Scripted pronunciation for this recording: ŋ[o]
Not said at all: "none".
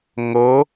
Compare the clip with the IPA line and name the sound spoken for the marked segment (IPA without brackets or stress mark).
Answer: ɤ